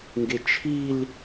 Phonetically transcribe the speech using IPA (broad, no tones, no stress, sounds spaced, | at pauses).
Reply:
ŋ ɡ e t͡ʃʰ i l